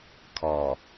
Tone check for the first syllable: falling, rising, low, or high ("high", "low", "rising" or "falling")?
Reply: low